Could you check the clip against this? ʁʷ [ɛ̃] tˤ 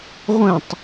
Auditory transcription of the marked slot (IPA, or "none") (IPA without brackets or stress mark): ɛ̃